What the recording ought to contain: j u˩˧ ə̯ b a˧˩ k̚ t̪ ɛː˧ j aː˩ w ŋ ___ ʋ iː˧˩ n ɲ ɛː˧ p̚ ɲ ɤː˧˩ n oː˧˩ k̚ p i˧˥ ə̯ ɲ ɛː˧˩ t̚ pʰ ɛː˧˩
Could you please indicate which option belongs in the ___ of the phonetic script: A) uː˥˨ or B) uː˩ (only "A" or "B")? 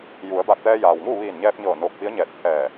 A